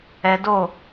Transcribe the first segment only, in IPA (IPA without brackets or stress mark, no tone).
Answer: ɛ